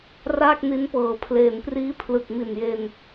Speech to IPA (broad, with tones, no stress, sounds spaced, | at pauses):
r aː˥˩ k̚ n i˦˥ n p ɤː˨˩ pʰ l eː˩˦ n p r iː˦˥ pʰ l ɯ˨˩ k̚ m i˨˩ n j e˧ n